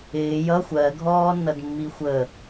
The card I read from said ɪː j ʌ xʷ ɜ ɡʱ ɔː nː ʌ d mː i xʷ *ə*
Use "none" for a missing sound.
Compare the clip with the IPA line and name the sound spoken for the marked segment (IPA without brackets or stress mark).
ə